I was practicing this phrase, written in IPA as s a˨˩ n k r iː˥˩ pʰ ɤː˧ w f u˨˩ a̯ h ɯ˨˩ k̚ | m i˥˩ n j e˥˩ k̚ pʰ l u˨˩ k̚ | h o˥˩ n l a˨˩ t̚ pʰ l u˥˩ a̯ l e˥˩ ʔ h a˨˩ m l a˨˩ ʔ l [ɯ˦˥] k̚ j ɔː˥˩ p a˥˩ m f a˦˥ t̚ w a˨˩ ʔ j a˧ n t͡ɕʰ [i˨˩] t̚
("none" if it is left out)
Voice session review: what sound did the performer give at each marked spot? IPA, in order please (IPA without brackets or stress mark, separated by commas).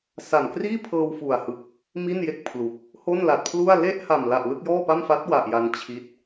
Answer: ɯ˥˩, i˦˥